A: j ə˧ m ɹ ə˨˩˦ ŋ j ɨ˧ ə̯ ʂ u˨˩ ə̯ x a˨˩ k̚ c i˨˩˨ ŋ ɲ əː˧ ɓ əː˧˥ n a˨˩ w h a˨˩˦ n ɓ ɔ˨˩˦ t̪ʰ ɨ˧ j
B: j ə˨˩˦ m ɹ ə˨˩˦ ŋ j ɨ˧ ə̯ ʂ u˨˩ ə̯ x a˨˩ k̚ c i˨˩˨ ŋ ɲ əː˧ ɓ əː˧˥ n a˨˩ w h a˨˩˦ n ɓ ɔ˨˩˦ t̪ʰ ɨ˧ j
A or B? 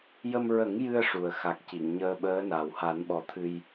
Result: A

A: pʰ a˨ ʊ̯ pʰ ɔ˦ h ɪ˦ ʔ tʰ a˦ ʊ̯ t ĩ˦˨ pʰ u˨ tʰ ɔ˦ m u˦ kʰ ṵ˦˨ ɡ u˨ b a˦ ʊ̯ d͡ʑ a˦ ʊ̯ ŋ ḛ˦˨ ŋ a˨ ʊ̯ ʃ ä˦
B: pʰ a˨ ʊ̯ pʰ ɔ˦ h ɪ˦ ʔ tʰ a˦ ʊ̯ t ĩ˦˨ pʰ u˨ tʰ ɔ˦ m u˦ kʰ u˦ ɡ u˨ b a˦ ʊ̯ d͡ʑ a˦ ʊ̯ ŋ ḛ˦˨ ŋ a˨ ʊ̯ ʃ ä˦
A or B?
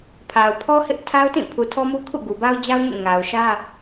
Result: A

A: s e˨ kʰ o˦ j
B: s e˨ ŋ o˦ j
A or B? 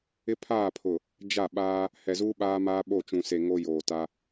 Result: B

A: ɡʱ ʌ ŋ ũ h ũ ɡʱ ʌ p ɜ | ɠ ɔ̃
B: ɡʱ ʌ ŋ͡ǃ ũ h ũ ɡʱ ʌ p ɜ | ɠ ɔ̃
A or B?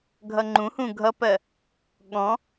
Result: B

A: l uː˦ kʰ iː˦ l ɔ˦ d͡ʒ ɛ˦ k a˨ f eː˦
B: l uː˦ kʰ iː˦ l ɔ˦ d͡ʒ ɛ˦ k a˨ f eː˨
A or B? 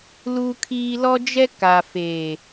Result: B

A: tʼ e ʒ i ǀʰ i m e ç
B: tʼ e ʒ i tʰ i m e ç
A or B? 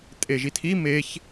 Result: B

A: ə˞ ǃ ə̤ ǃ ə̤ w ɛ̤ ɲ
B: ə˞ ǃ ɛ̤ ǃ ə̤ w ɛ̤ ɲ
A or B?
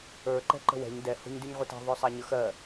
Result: B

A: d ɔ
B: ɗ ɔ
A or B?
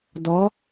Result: A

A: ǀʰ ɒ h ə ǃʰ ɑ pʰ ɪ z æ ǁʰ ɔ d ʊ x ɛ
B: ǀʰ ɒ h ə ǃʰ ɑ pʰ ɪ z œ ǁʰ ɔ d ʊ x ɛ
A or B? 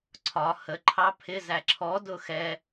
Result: A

